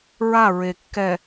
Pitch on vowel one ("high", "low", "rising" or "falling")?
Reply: falling